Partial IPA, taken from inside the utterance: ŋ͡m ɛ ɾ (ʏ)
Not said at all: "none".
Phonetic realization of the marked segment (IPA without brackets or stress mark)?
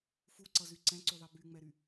y